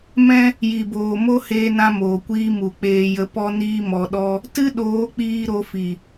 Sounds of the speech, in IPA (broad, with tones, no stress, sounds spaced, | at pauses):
m ɛ̃˦ | j i˨ b oː˨ m o˦ h eː˦ n ã˦ m oː˨ kʷ iː˦ m u˨ k͡p eː˧ j ə˧ p ɔ˦ n iː˦ m ɔ˧ ɗ ɔ˦ | t ɨ˦ ɗ oː˨˦ k͡p iː˧ ɾ o˧ f i˨